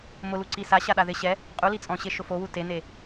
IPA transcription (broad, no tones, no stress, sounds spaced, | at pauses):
m ʊ l u ǀ i s a ɕ a ɗ a ð ɪ ɕ ɛ | qʼ u l i t͡sʼ ɔ̃ ɕ e ʃ ʊ f o w u t e n e